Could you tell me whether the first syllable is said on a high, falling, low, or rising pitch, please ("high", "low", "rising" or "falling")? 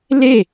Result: falling